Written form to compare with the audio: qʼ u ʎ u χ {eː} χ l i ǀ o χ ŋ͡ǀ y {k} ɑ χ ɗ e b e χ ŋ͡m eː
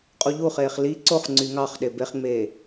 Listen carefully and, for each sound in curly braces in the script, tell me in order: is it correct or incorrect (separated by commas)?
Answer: correct, incorrect